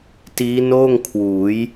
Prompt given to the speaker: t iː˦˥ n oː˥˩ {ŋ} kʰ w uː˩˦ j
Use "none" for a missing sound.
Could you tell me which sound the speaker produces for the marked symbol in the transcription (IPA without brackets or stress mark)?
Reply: ŋ